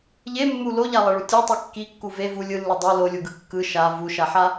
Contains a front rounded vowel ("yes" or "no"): no